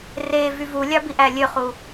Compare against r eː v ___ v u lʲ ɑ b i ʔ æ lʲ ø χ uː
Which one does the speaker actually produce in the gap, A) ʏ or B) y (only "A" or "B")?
B